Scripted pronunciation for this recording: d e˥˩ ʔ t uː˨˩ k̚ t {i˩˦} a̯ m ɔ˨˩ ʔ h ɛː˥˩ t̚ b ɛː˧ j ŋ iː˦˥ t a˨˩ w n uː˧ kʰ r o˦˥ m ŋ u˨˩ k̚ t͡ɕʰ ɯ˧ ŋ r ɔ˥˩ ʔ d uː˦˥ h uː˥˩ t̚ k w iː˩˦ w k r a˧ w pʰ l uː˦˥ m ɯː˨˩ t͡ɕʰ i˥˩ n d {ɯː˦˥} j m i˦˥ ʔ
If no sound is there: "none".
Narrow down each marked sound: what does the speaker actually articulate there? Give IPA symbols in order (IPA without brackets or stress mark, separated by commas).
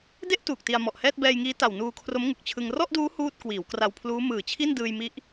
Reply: i˧, ɯː˧